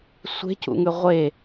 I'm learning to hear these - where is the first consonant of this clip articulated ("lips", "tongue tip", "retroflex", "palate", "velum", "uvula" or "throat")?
tongue tip